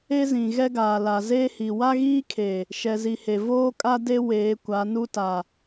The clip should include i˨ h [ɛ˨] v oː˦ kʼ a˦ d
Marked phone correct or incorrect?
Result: incorrect